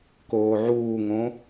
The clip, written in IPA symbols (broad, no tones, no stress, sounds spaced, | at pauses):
k oː ʕ uː ŋ õ